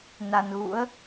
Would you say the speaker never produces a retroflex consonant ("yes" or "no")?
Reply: yes